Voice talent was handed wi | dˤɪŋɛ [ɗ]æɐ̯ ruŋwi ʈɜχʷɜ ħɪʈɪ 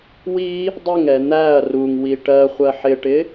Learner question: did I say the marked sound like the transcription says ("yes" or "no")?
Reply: no